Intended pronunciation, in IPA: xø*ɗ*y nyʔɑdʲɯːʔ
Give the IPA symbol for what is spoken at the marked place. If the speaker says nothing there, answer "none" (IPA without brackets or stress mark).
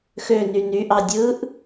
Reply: n